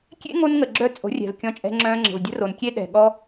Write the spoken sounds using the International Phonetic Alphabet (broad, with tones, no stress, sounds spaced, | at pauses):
kʲ ḛ˦ ŋ o˦ n ŋ ə˨ ɡ͡ǁ œ˦ t͡sʼ o̤˨˦ rʲ ɛ̤˨ v kʲ ɔ̃˧ t͡ʃʼ ɛ̤˧ ŋ͡ǁ œ̃˧ ŋ͡ǁ ə̤˨ v dʲ ə̤˦ r o˨ n kʲ e˦ ɗ ɛ̤˨ ɠ ɔ˦